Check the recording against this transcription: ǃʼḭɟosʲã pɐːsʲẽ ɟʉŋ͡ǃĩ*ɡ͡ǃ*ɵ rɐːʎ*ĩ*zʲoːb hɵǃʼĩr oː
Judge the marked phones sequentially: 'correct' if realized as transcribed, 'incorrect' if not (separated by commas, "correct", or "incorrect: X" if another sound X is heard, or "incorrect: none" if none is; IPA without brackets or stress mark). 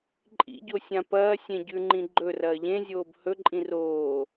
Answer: correct, incorrect: ẽ